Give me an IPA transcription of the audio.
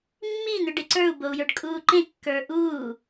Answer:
mːin̪ʏ ɖeǀə˞u̯bou̯jə˞ɖ kʼuːǃẽ kːə˞ʔuː

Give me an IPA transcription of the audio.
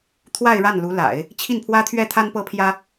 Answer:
t̪ʰwa˥˧ɪ̯ɻa˥˩nlu˧˥la̰˨˩˦ɪ̯ | t͡ɕʰi˥˩npʰwä˥t̪ʰɥɛ˥t̪ʰa˥n pɤ˥pʰjä˥

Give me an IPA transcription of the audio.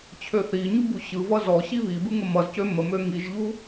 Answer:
t͡ɕʰøθiɲu buɕɯvʌ zɔ ɕiβibɯ ŋəmʌzcø məmø ŋiʒʎu

